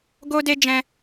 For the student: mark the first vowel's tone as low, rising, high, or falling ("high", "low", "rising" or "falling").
high